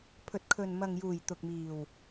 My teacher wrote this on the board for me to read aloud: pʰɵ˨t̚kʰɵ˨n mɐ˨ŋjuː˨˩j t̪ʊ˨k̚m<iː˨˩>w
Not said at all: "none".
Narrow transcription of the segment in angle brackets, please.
iː˨˩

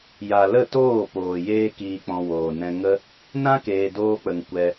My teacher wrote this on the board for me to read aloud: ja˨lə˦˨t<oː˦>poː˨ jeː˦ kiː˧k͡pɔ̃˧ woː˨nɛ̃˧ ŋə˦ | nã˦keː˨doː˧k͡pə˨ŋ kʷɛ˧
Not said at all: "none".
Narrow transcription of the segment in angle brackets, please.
oː˦˨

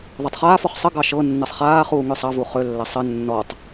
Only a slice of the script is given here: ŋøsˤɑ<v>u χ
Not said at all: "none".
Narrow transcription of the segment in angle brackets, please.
v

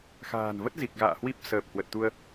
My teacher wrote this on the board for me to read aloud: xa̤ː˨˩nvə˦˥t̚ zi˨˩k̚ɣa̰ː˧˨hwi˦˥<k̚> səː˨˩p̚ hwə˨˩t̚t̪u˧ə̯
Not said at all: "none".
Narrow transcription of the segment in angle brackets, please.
p̚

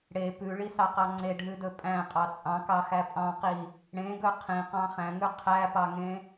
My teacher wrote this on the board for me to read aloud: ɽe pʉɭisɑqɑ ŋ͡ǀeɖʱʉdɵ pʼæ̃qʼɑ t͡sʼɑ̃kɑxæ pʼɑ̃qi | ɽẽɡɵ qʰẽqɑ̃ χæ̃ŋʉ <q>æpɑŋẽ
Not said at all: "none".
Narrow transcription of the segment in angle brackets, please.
qʰ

